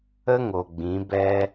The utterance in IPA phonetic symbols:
ə˦ ŋo˨ɡ͡bĩ˨˦ bɛ˦

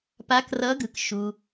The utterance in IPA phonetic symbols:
pa˨˦krʌ˨˦ɡɯ˩k ʃu˩

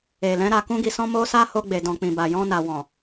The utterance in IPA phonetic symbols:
e˨lɛ̃˨˦ ɾa˧kũ˦ɡi˧sɔ̃˦ mo˦sa˦ho˧ɡ͡be˨ dɔ̃˨k͡pĩ˨ ba˨jɔ̃˧na˨ wɔ̃˨

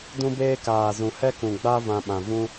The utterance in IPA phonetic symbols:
dũ˦beː˦ kaː˨zũ˨ hɛ˦kũ˨ɡ͡ba˦ vã˧ɓã˨ vũ˦

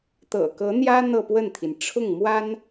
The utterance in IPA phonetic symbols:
t̪ɤ̰˨˩kɤ˧˥n̪jä˥ n̪ɤ˥˧pwə˥˩nt̪ʰi˩n ʈ͡ʂʰʊ˥˩ŋmwa˥n

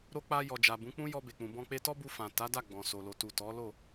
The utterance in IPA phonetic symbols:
ɾo˧k͡pa˧ jɔ˨d͡ʒa˨bũ˨˦k͡pũ˦ jɔ˧be˨k͡pũ˨bɔ̃˧ k͡pe˧tɔ˦bu˧fã˨ ta˨˦da˦˨ ɡ͡bɔ̃˨so˨ lo˨tu˨ tɔ˨˦lo˦˨

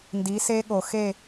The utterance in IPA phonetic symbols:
ndi˨˦se˦ɠo˨ xe˦˨

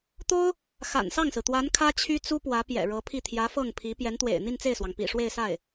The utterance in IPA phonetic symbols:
t̪o˥ʊ̯ | xa̰˨˩nsɑ˥˩ŋsɹ̩˩t̪wa˧˥n kʰä˥t͡ɕʰy˥t͡su˥ pwä˧˥pjɛ̰˨˩ɻɤ˧˥pʰi˥˩ t̪ʰjä˧˥ fɤ˥˩ŋpʰi˧˥ pjɛ˧˥nt̪wḛ˨˩ɪ̯ n̪i˥˧nt͡se˥˩ɪ̯swɑ˩ŋ pḭ˨˩ ʂwe˥˧ɪ̯sa˥˩ɪ̯

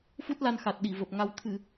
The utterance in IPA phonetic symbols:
fu˦˥t̚la˧nxa˨˩t̚ɗi˧˩ və˨˩p̚ ŋa˧w t̪ʰɨ˧˩˨

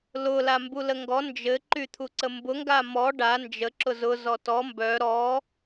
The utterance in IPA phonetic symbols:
lʊ lambuləŋɡɔ nd͡ʒɘ ǃyt̪ʰuǀəmbʊ ŋɡamɔ ɖa nd͡ʒə ǁʊzʊ zɔtɔ mbœ ɾɔ

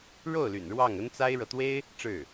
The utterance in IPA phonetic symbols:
ɻo˥˩ʊ̯ly̰˨˩n ɻwɑ˥˩ŋə˥nt͡sa˥ɪ̯ɻɤ˨ t̪we˥ɪ̯ | ʈ͡ʂɻ̩˥˩

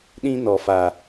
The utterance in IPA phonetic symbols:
ɗĩ˦nɔ˨fa˨

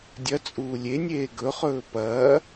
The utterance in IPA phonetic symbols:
dʲɐt͡sʼuː lʲenʲeː ɡɵχɵː pɐː

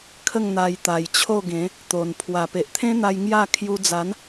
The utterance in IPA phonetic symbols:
kʰə˥˧ŋn̪a˧j t̪a˨˩jt͡ɕʰo˥˧ɡẽ˨˦ | t̪o˨˩n pʰwa˨˩pe˨ʔt̪ʰẽ˦n̪a˧j ŋja˥˧ kʰju˧d͡za˨˦n

